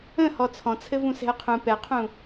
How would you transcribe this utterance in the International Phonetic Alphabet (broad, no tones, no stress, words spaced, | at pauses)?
ə̃ hɔt͡sʰɔ̃t͡sʰɘvũ sɛ̤ə̯qʰũ pɛqʰũ